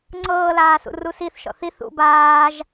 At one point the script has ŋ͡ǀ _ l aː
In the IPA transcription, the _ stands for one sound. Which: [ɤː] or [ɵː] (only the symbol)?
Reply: ɤː